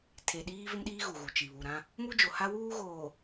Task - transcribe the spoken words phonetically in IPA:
tʰ e˨ ɗ iː˦ v ɪ˦ m ɗ iː˦ ɣ u˨ ɣ u˨ t͡ʃ i˨ β u˨ ɾ ã˦ | m u˦ d͡ʒ o˨ h a˦ w uː˦ ɣ oː˨

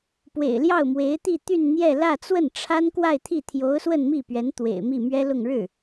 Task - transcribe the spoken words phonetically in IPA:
p w ḛ˨˩ ɪ̯ l j ɑ˥˩ ʊ̯ m w e˧˥ ɪ̯ t̪ i˥˧ t̪ y˥˧ n n̪ j ɛ˥˧ l ä˥˧ t͡s w ə˥˩ n ʈ͡ʂʰ a˥ n k w a˥˧ ɪ̯ t̪ʰ i˥˩ t̪ʰ j o˧˥ ʊ̯ s w ə˥˧ n m i˥˩ p ɥ ɛ˧˥ n t̪ w ḛ˨˩ ɪ̯ m i˥˩ m ɥ ɛ˥ l ʊ˥˧ ŋ ɻ ɻ̩˥˩

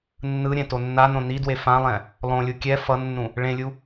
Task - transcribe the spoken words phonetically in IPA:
nː ɯ ɾʲ ɛ̃ t o nː a n õ n i d w e f ã lˠ ɛ̃ | lˠ õ lʲ u kʲ ɛ f ʌ nː ũ | ɭ ẽ lʲ u

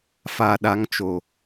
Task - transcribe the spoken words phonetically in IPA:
f a˨ ɗ a˨˦ ŋ t͡ʃ o˨

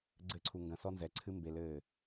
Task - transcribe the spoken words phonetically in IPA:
ɡ͡ǀ ɘ˦˨ ǀʰ u˧ ŋ ɡ ɐ̃˧ s ɔ˦ n z ɛ˨˦ ǀʰ ɨ˦ m b e˧ l ɘː˦˨

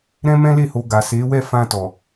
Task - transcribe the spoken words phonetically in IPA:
ɾ ɛ̃˦ m ɛ̃˦ l e˦˨ h o˧ ɡ a˨ s e˨˦ w ɛ˦˨ f ã˧ t ɔ˨

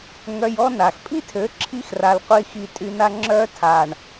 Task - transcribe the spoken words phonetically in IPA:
ŋ œ˧ j ɔ˦ n a˨ x pʼ i˦ tʰ ø˨˦ ǁʰ i˧ x r a˨ l qʷ i˧ x i˧ tʼ y˧ n a˧ ŋ͡ǁ œ˧ tʰ a˨ ɳ

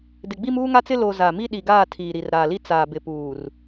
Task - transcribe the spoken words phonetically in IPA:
d ɪ˨ ɡ͡b i˦ m uː˦ ŋ a˦ t͡s ɪ˦ l o˨ z a˨ m i˦ ɗ i˨ ɡ aː˦˨ tʰ iː˨ ɾ i˨ r ɾ aː˨ l i˦ t͡s aː˨ b ɪ˨ p uː˨ r

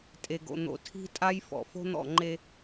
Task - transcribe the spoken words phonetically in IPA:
tʼ e˨ ɡ o̰˨ n̪ o̰˨ tʰ i̤˦ tʼ a˦ j f ɔ̰˨ f o̤˦ n̪ ɔ̰˦˨ ŋ͡ǃ e˦

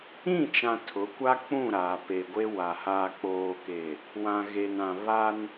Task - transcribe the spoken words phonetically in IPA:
ĩ˦˨ t͡ʃ ã˨ tʰ ʊ˨˦ kʷ a˦ k͡p ũ˦˨ ɾ aː˨ p e˨ ɡʷ e˦ w a˨ h aː˨ k͡p oː˨ k e˨ | w ã˨ ɣ e˨ n ã˨ β a˦ n

